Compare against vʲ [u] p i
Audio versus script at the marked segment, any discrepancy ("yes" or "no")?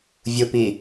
no